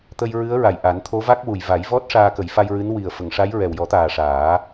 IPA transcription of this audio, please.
t̪ ə˧ j ɹ ɨ˧˥ ə̯ ɹ a˨˩ j ʔ a˨˩˦ n t̪ʰ o˧˥ v a˦˥ k̚ w u˨˩ j v a˨˩˦ j v ɔ˦˥ t̚ ʂ aː˧ k ə˨˩˦ j f a˧ j ɹ ɨ˧˥ n w i˨˩ ə̯ f ə˨˩˨ ŋ ʂ a˧˥ j ɹ ɛ˨˩ w j ɔ˨˩˦ t̪ aː˨˩ ʂ aː˨˩˦

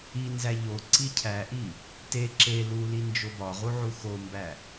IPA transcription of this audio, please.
i n z æ ʎ o ǀ i cʰ æ ʔ i | t e ǁ e l u l i n d͡ʒ o b ɒ ʁ u ʕ u x o m b æ

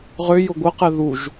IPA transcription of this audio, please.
ʁ ʏ j ʊ ɡʷ ə q ɛ ð u ʒ

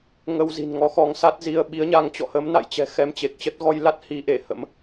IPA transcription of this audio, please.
ŋ ə˧ w z i̤˨˩ n ŋ ɔ˨˦ x ɔ˨˦ ŋ s a˦˥ t̚ z i˧ ə̯ ɓ i˨˦ ə̯ ɲ a˧ ŋ t͡ɕ ɔ̰˧˨ h ə˨˦ m n a̰˧˨ j t͡ɕ ɛ̤˨˩ x ɛ˧ m t͡ɕ e˨˩ k̚ t͡ɕ ə˦˥ t̚ ɣ ɔ˧ j l a˦˥ t̚ h i˧ ʔ e˧˩ h ə̰˧˥ m

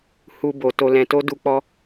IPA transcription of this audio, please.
h u˨ b o˨ t o˨ l ɛ̃˨ t o˧ d u˧ k͡p ɔ˦

